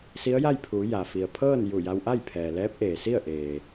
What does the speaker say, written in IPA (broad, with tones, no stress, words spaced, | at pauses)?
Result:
si˧˥ə̯ja˥˨jpʰuː˩˧ ja˩ fi˩ə̯pʰɤː˥˨n ju˧˩ja˧wʔa˥˨j pʰɛː˩lɛː˧˥p̚ ʔeː˩si˥˨ə̯ʔeː˩